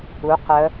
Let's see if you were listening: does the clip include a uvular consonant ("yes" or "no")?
yes